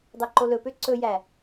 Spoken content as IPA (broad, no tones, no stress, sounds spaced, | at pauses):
dˤ ɛ ǃ o l ɵ p ø ǀ ɵ j æ